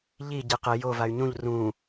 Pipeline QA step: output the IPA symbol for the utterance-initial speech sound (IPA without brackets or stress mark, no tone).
ʎ